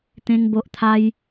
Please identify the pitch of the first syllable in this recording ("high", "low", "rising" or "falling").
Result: high